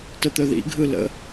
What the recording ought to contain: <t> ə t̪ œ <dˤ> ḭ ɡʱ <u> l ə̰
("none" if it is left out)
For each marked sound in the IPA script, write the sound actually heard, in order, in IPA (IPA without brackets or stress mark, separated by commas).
t, ð, ɯ